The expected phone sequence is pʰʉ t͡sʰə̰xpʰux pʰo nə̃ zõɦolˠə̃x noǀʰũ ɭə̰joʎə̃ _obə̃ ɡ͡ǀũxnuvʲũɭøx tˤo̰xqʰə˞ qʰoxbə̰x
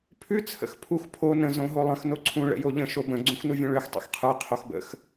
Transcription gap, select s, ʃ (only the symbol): ʃ